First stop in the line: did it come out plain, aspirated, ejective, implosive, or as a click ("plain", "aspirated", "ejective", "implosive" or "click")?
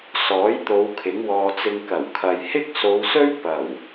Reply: plain